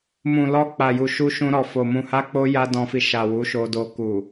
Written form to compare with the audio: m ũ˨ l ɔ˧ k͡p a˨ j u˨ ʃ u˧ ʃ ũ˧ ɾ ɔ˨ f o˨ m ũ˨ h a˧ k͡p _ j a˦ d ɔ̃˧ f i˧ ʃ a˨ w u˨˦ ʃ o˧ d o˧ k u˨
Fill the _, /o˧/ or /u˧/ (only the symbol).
o˧